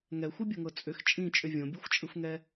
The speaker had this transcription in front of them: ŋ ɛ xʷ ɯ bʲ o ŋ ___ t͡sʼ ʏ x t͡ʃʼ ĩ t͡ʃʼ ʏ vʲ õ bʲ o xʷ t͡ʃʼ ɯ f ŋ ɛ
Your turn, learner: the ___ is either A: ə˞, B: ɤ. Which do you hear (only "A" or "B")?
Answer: B